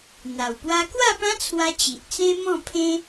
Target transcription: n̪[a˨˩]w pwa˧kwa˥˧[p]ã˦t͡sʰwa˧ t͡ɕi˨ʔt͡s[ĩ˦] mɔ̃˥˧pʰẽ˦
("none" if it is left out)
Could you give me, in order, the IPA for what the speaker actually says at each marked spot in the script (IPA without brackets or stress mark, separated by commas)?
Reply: a˨˩, p, ẽ˦